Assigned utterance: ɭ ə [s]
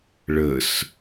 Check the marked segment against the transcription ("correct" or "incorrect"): correct